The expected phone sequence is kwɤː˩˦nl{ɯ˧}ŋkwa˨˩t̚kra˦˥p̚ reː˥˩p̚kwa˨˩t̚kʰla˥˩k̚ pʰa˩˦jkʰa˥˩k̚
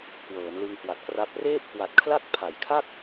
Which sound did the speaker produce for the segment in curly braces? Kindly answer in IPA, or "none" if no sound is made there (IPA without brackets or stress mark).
ɯ˧